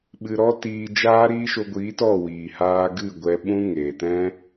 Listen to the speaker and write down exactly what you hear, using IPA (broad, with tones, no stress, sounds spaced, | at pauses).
ɓ ɨ˧ ɾ ɔ˦ t iː˧ d͡ʒ aː˦ ɾ iː˦ ʃ o˧ ɡʷ iː˨˦ t ɔ˦˨ w iː˨ h aː˧ ɡ ɨ˦˨ ɡʷ ɛ˧ ɓ ũ˦ ŋ eː˨ t ɛ̃˦